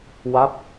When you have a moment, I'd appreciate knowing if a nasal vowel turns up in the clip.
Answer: no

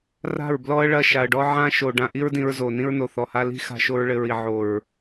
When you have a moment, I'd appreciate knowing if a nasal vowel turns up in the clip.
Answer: yes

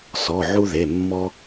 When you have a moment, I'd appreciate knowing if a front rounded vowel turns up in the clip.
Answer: no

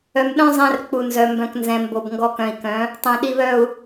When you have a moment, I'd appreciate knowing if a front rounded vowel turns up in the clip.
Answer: yes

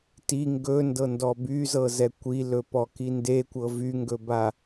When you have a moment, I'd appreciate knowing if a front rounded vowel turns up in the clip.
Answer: yes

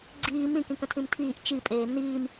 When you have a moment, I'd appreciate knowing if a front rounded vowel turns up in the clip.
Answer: no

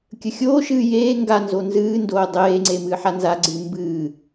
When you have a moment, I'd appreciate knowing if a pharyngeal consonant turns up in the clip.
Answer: yes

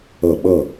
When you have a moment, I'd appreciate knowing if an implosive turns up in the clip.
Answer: yes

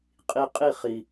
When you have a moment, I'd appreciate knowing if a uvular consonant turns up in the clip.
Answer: yes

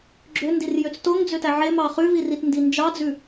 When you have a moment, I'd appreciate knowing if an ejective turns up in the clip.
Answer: no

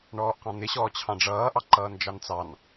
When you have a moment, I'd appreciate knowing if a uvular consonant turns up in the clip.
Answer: yes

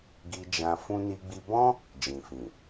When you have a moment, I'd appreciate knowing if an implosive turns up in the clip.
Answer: no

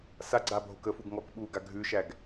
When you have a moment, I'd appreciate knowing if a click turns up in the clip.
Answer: yes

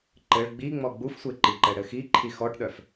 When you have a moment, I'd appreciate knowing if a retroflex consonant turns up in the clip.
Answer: yes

